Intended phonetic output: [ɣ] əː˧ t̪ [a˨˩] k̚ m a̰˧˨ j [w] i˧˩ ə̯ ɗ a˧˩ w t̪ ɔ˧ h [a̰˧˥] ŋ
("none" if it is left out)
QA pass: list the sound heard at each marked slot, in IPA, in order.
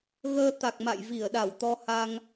ɣ, a˨˩, v, a˧

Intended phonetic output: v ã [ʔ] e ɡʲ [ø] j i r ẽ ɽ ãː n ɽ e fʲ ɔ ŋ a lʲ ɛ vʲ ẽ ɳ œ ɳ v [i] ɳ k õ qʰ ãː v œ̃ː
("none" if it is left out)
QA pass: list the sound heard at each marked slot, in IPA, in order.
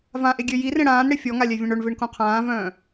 ʔ, ø, e

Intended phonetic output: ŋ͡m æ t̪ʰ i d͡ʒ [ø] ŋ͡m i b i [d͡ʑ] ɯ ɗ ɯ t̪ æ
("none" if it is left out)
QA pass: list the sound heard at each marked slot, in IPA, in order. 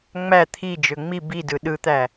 ø, d

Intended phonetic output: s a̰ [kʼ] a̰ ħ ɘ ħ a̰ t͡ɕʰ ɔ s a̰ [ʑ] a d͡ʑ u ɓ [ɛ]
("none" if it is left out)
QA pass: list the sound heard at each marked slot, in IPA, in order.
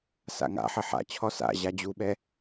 ŋ, ʑ, ɛ

